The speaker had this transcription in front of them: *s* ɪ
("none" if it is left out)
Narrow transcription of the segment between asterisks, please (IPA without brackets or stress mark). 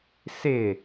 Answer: s